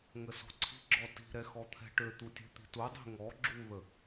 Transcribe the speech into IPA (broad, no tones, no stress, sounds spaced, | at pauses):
ŋ ə s ɔ̤ ǀʰ i̤ ɡ͡ǁ ɔ t i̤ ɾ ɛ x ɔ t̪ʰ ɛ̤ ʈ ø t̪ u tʲ ɛ̤ t̪ i̤ t u dˤ i̤ ŋ ɔ ɡ͡ǁ u ð ə